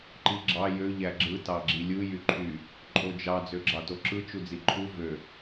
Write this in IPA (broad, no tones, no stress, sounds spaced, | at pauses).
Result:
ǃ i ɡ͡ǁ ɑ j ø ʎ æ ɡ͡ǁ ɯ t ɑ ɡ͡ǁ i lʲ ɯ j y ǃʰ y | ǃʼ o d͡ʒ ɑ d͡z ø ɡ͡ǁ ɑ t o ǁ ɯ t͡ʃ u d͡z i ǃʰ u v ø